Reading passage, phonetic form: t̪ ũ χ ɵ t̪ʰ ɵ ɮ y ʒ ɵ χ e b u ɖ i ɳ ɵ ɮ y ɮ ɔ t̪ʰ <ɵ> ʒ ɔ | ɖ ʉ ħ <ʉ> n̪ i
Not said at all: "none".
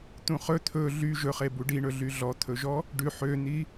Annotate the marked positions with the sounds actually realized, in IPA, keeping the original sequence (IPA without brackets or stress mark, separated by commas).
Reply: ɵ, ø